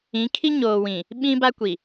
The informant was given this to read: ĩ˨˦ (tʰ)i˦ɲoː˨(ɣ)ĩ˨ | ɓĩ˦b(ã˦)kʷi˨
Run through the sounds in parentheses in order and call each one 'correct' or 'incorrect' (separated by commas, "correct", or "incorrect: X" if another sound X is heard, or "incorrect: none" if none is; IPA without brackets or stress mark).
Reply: incorrect: kʰ, incorrect: w, incorrect: a˦